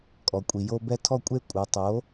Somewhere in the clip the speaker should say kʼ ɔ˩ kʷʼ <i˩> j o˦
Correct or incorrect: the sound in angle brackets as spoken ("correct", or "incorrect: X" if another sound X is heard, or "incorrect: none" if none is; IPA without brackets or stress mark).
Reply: correct